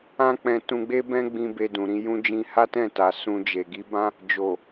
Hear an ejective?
no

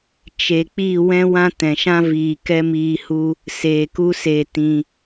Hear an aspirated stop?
no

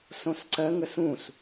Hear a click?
yes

